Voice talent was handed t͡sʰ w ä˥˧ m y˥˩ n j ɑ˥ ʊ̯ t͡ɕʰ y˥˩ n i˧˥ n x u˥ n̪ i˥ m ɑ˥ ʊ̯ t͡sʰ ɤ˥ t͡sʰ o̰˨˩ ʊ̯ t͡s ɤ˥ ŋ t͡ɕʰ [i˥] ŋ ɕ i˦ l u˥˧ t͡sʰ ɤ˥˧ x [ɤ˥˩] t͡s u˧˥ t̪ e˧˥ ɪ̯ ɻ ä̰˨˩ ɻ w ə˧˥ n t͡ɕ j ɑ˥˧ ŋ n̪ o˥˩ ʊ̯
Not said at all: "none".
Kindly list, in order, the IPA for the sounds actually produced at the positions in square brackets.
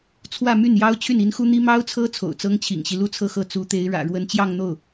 ḭ˨˩, ɤ˥˩

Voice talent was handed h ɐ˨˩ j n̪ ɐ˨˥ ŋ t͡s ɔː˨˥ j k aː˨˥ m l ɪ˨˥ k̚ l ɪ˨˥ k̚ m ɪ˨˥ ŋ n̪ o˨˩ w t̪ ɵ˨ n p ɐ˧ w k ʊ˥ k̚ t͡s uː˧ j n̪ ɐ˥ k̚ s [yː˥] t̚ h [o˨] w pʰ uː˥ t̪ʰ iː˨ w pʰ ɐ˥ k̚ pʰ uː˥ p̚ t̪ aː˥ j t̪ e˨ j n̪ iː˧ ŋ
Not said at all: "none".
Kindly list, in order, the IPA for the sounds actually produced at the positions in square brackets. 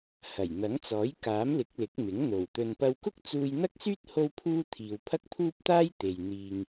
yː˥, o˥

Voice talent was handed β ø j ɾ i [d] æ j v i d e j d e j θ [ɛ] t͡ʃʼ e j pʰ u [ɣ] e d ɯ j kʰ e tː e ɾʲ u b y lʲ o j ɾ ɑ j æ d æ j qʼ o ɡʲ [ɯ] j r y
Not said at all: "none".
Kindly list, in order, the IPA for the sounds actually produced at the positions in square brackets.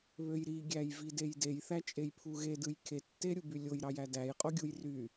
ɡʲ, æ, ɣ, u

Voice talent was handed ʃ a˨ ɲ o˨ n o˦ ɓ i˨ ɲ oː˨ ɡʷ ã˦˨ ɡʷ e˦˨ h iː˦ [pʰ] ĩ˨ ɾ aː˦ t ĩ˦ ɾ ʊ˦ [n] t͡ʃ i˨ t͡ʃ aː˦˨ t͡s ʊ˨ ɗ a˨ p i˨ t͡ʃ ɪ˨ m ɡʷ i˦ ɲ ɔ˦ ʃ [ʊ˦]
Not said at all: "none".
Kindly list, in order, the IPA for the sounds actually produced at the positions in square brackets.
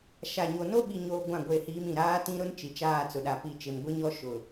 m, n, ʊ˨

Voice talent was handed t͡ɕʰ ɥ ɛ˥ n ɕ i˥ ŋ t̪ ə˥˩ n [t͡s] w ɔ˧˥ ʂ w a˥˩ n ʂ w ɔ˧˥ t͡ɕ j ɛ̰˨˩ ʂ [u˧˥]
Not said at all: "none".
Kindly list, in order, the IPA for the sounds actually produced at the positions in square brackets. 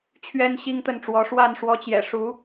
ʈ͡ʂ, u˧˥

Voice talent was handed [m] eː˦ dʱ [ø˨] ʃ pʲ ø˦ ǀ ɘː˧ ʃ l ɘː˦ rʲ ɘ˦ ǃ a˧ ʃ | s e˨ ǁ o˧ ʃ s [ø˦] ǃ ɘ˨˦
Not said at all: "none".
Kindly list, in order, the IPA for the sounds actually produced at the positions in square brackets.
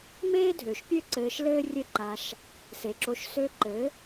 m, ø˨, ø˧

